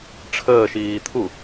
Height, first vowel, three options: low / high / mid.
mid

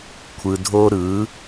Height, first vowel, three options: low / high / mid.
high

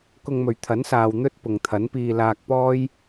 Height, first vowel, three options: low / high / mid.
high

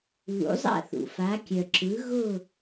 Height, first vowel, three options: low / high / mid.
high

